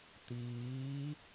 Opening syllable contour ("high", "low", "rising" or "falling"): rising